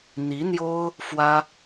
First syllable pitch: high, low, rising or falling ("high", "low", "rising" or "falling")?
rising